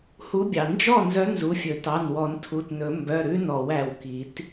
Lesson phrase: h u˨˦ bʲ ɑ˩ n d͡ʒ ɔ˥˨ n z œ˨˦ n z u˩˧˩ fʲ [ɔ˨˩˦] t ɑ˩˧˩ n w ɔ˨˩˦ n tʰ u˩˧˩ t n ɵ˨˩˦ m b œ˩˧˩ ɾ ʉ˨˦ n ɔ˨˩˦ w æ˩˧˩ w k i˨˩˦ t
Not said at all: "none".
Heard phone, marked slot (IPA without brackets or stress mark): ɵ˨˩˦